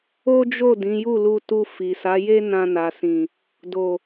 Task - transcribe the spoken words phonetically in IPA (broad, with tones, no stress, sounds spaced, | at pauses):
o˦ d͡ʒ o˦˨ d ĩ˨˦ j u˦˨ l u˧ t u˧ f i˨ s a˨˦ j e˦ n ã˧ n a˨ s ĩ˨ | d o˨